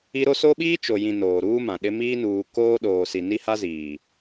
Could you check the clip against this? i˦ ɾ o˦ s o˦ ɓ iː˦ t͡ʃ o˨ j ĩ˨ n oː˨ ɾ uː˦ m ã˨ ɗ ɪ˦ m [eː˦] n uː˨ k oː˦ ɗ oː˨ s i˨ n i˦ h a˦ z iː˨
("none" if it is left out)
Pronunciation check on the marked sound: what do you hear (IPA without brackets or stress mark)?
iː˦